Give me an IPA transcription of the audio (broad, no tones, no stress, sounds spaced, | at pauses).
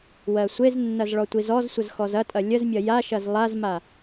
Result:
w ɜ sʷ e z nː ɐ z ɭ ɔ tʷ i z ɔ z sʷ ə z x ɔ z ɐ tʼ ɐ lʲ ə z mʲ ɐ j a ʃ ɐ z lˠ a z m a